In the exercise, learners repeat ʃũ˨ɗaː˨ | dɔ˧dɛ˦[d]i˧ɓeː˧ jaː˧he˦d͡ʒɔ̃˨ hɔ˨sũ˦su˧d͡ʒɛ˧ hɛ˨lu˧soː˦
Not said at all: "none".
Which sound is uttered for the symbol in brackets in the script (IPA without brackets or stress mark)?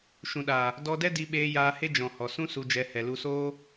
d